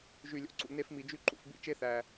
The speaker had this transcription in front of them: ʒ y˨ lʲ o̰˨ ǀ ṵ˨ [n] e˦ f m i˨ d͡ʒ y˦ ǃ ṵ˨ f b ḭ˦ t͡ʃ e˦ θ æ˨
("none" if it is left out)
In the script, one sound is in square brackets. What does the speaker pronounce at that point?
n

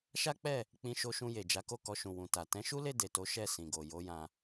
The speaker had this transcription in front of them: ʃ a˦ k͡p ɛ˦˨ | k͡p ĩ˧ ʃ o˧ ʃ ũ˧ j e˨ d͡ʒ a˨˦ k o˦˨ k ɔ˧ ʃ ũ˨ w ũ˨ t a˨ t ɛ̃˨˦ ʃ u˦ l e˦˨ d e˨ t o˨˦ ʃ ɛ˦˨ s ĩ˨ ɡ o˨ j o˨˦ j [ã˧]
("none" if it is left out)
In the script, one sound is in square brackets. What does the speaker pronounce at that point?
ã˧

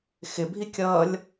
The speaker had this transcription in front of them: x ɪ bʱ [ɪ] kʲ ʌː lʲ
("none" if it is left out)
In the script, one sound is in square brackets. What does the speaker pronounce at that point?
i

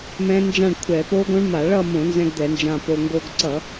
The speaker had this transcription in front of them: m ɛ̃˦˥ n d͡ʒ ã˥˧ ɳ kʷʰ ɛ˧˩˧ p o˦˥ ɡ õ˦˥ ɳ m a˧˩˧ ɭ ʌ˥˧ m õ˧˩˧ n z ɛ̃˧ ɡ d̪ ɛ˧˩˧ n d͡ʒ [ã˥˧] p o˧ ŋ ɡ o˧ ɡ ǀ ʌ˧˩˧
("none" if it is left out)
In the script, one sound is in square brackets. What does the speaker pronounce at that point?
ã˧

